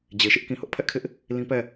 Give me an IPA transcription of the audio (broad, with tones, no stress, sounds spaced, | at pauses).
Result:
d͡ʑ e˨ ʃ ɪ˦ ʔ k ĩ˨ h ʊ˦ ʔ pʰ ɛ˦ ʔ kʰ ɪ˦ ʔ | l ĩ˦ p ɛ˦˨